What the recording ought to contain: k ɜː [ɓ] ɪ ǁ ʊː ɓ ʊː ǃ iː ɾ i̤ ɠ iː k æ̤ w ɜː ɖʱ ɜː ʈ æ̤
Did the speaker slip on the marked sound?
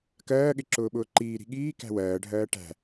yes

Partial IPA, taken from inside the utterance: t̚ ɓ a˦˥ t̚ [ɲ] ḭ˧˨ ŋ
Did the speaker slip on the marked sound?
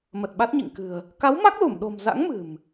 no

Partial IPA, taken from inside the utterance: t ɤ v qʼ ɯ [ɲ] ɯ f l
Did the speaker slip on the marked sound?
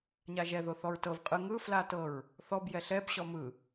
yes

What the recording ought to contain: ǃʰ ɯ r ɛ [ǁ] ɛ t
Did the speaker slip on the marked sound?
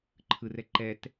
yes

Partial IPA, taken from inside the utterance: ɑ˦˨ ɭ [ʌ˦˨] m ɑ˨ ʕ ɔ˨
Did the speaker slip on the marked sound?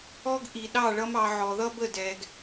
yes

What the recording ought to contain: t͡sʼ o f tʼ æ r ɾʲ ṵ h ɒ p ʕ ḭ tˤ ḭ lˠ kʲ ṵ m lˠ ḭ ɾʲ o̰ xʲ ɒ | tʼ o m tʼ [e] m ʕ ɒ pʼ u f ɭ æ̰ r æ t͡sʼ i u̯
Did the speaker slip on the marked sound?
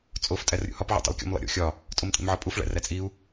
yes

